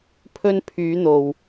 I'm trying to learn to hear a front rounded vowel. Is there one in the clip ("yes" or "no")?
yes